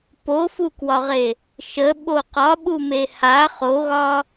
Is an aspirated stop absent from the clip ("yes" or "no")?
yes